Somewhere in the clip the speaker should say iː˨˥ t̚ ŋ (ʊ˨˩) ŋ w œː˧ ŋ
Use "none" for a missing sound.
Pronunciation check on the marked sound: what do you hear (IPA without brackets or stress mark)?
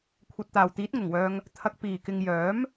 ʊ˨˩